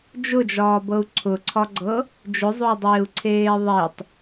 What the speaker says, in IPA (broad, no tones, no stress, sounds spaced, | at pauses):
d͡ʒ ʊ d͡ʒ ɒː b ɤ u̯ ǀʰ ʊ ǀʰ ɒ ɡ͡ǀ ɤ | d͡ʒ ʊ zˤ o y̯ dˤ eː u̯ ǀʰ eː ðˤ e tˤ